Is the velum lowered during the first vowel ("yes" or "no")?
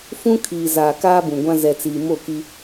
yes